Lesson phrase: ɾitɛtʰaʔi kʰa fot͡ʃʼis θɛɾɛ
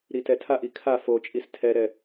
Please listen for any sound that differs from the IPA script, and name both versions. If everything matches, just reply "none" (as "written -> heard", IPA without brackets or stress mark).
θ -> tʰ